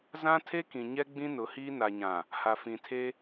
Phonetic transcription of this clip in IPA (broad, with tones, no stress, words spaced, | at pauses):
zã˦tʰe˦kĩ˨ ɲɛ˦ɡ͡bĩ˦ nʊ˨˦hiː˦ na˨ɲã˨ | ha˨fĩ˨tʰe˦